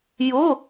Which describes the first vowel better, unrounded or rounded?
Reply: rounded